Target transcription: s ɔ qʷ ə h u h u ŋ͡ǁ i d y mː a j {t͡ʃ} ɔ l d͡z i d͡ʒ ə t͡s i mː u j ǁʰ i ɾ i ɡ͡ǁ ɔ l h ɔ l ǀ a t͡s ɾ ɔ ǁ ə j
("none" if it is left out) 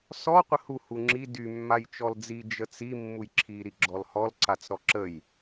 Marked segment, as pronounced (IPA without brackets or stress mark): t͡ʃ